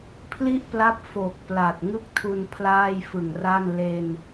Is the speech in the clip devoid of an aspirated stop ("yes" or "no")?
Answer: no